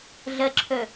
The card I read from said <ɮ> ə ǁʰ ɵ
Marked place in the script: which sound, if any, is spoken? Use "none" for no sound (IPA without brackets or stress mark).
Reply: ɮ